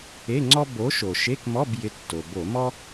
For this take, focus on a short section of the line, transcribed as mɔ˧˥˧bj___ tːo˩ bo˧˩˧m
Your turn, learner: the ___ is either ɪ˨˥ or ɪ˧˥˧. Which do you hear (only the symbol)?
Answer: ɪ˨˥